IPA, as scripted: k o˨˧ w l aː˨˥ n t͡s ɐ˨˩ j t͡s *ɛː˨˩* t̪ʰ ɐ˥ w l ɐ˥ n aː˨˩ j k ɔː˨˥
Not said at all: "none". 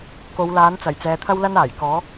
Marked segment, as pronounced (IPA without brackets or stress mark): ɛː˨˧